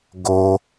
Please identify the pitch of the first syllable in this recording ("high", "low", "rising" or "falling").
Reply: low